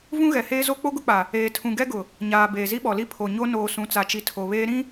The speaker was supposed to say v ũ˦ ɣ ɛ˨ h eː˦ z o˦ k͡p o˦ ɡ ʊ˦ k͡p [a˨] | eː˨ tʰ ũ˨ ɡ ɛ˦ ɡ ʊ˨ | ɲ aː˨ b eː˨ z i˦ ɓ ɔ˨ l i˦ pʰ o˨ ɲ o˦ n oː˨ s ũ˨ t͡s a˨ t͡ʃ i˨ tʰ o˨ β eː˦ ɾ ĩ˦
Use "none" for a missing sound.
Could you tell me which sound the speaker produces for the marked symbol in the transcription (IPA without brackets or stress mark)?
a˨